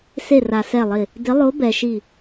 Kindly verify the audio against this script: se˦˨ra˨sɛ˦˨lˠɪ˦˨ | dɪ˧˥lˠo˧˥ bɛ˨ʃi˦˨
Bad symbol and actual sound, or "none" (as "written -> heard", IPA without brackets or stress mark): none